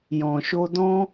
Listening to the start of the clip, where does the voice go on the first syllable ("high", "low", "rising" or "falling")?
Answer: low